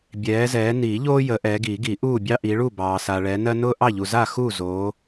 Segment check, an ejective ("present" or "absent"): absent